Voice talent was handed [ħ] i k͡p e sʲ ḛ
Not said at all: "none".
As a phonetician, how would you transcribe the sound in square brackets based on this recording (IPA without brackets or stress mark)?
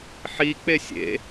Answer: ħ